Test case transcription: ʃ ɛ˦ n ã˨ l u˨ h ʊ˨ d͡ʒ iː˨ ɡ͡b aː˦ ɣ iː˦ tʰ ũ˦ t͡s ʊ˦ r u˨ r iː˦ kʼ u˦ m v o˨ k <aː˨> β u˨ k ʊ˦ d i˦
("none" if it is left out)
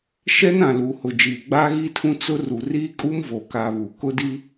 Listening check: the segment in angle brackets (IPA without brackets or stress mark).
aː˨